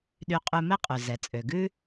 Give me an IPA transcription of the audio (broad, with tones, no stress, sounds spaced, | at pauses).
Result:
ɗ y˧ qʼ ʉ˧ m ɛ˥ qʼ ʉ˩ z ɛ˩ t͡sʼ ø˩ ɡ ʉ˥